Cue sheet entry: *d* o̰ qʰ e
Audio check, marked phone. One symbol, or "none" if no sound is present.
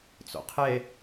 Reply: t͡s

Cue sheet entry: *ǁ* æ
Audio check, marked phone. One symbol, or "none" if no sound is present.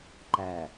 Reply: ǃ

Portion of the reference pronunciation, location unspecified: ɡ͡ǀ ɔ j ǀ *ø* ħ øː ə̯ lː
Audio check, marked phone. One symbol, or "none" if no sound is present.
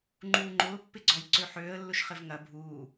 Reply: ø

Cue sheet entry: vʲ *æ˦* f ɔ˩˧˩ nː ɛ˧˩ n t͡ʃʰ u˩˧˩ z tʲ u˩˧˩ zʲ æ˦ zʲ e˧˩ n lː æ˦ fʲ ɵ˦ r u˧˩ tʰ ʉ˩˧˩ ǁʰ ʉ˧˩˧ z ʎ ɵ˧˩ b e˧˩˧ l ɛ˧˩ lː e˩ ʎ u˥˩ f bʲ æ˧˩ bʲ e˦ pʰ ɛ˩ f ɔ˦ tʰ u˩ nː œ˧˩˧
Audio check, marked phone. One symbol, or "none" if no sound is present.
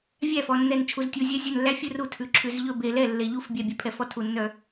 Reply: æ˥˩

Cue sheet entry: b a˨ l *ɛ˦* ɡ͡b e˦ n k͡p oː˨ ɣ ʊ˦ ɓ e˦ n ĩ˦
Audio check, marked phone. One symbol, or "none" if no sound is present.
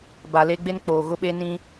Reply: e˦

